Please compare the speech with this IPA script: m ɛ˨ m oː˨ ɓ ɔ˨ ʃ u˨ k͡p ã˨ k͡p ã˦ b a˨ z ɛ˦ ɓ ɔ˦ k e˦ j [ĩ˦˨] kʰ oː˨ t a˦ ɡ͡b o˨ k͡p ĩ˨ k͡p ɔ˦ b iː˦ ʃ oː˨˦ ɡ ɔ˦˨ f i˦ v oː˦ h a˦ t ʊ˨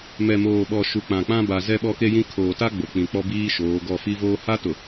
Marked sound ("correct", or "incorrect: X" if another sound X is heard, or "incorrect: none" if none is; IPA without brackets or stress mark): incorrect: ĩ˦